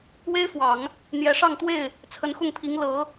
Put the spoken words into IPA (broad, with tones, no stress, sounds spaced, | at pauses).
w e˥ ɪ̯ f w ɑ˨˩˦ ŋ | n̪ j ɛ˧˥ ʂ ɑ˥˧ ŋ t̪ w e˥˩ ɪ̯ | t͡sʰ ə˧˥ n x ʊ˥˩ ŋ t̪ʰ i˧˥ ŋ l ɤ˧˥